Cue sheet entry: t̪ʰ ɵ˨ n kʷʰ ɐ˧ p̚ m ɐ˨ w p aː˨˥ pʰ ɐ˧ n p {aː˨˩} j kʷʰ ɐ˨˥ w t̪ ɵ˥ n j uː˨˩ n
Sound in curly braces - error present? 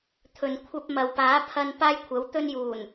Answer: yes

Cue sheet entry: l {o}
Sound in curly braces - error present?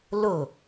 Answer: no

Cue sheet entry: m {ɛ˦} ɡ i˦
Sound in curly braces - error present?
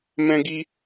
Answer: yes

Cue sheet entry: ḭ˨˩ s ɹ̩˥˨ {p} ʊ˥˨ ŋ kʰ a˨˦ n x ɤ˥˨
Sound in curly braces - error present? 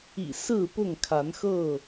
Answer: no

